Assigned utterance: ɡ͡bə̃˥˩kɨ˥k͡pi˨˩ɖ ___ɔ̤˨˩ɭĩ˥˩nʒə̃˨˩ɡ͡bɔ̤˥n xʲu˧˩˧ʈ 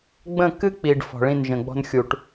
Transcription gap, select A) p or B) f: B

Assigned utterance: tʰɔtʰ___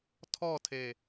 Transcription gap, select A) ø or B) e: B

